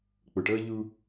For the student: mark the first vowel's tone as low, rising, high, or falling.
low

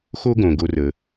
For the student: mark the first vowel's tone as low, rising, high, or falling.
high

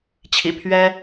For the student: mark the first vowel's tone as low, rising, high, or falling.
low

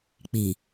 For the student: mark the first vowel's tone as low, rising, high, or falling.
low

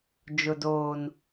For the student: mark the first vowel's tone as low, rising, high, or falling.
high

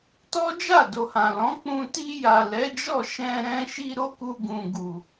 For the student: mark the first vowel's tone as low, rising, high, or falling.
high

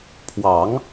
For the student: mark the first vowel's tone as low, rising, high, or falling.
low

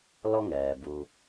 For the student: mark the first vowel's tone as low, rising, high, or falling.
high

